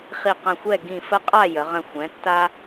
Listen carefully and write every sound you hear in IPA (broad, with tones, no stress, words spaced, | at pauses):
χi˧˩qə̃˧˩xʷɛ˥˨ ɡĩ˧˩fə˦qʼa˥˨ jə˩˧ʁə̃˧˩xʷɛ̃˩˥ tːa˦